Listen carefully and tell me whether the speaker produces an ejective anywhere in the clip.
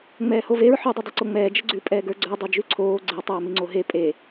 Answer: yes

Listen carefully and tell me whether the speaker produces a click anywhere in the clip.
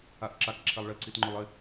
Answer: yes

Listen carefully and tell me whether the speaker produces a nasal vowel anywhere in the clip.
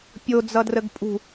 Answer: no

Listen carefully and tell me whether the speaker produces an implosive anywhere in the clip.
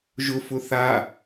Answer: no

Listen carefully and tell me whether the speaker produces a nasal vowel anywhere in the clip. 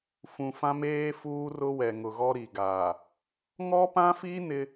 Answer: yes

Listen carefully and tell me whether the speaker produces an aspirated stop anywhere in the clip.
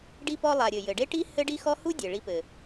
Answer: no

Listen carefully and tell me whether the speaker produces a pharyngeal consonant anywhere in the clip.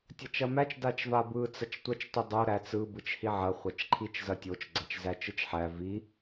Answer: yes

